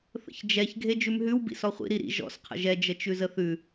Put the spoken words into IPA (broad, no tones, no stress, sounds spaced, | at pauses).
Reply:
θ ə̰ ç d͡ʒ ɛ ç ɡʱ e d͡ʒ ʉ m ɦ ʉ w b ḭ s ɔ χʷ ḭ ɾ i ɾ ḭ ʒ ɔ̰ s qʰ ə̰ ʒ ɛ d͡ʒ ə t͡ʃ ʉ z ə θ ʉ